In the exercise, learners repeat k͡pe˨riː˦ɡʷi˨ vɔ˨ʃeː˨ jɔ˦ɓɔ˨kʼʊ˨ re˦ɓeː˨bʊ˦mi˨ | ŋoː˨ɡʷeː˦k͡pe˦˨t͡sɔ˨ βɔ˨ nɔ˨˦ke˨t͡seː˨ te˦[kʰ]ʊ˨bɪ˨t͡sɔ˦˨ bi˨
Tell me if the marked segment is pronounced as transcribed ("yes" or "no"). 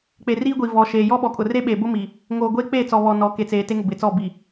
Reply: no